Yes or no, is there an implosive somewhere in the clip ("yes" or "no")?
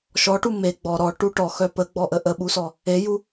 yes